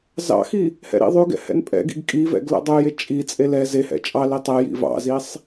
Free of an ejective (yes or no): no